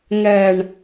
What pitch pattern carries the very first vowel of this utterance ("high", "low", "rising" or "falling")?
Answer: low